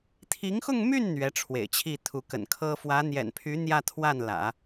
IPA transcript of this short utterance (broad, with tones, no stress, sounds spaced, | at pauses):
t̪ʰ i˧˥ ŋ x ʊ˥˧ ŋ m y˥˩ n n̪ ɥ ɛ˧˥ ʈ͡ʂʰ w ḛ˨˩ ɪ̯ t͡ɕʰ i˥˩ t̪ʰ u˧˥ k ə̰˨˩ n kʰ ɤ˥ f w ä˧˥ n̪ j ɛ̰˨˩ n pʰ y˧˥ n̪ j ä˥˧ t̪ʰ w a˥˩ n l ä̰˨˩˦